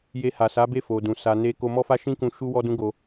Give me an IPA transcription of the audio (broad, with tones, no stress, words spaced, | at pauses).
je˧ha˨sa˨˦ be˦˨fo˨dũ˨ sa˧ne˦ ko˧mɔ˦fa˦ʃĩ˦ kũ˦ ʃu˦wɔ˦dũ˦ɡo˧